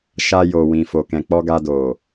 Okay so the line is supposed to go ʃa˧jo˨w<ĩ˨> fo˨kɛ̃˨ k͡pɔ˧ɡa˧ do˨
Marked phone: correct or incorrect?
correct